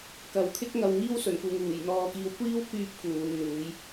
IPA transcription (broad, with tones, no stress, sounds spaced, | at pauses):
k ɐ˨˩ w kʰ ɪ˥ k̚ ŋ ɐ˨˧ w ŋ iː˥ w s ɵ˨˩ n k uː˨ ŋ uː˨˩ j n̪ ɔː˧ k iː˧ w kʷ iː˥ w k yː˧ p̚ k uː˨˧ n n̪ uː˨˥ j